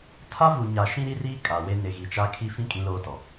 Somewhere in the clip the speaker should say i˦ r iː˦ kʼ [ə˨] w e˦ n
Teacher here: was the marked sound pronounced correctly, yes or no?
no